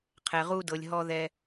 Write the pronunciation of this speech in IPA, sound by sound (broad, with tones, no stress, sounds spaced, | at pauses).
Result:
qʰ ɛ˩ ʁ u˨ d ɤ˩ lʲ ɦ ɔ˨ ð ɛ˨